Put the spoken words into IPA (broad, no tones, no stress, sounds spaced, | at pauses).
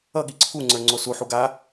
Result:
ʌ ɠ i ǀʰ u ŋ͡ǀ ə˞ ŋ͡ǀ o s u ħ u ɡ a